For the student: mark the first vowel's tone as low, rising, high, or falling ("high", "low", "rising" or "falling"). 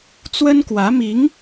high